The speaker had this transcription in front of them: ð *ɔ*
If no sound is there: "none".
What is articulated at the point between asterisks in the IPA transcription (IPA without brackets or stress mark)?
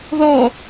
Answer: ɔ